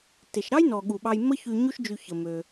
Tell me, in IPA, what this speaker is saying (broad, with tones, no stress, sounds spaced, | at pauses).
t e˩ ʃ ɾ ɑ˥ j n ɔ˩ ɠ u˩ ɓ ɑ˨ j m ə˦ ç y˨ ɲ u˦ ʃ d͡ʒ y˨ ç ə˩ m ø˩